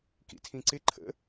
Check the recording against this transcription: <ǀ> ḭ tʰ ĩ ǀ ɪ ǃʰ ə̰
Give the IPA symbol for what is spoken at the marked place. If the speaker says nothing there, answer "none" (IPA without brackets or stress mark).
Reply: k